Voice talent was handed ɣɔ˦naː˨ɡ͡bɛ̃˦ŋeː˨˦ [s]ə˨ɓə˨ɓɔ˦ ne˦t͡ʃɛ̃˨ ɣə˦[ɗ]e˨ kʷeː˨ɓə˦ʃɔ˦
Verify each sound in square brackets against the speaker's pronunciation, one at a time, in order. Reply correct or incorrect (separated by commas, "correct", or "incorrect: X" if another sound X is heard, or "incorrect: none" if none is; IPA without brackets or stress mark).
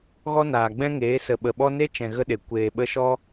correct, correct